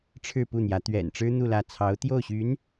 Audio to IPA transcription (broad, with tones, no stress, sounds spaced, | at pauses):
ʈ͡ʂʰ ɻ̩˥˧ p u˥˩ n̪ j ä˧˥ t̪ ɥ ɛ̰˨˩ n ʈ͡ʂ ɻ̩˥ n̪ u˥˧ l ä˥˩ t͡sʰ ɑ˧˥ ʊ̯ t̪ j o˥˩ ʊ̯ ɕ y˧˥ n